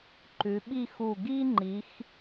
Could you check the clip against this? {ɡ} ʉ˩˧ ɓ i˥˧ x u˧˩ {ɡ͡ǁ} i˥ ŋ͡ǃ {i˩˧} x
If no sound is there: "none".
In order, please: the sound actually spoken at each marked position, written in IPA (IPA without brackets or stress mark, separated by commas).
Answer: ǃ, ɡ, i˩˧